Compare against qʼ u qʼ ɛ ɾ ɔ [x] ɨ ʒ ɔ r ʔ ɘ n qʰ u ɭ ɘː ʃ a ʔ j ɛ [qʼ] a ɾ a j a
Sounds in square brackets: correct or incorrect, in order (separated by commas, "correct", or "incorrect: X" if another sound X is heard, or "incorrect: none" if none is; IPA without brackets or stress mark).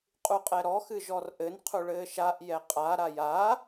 correct, correct